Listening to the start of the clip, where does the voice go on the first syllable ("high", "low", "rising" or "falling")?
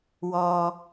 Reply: low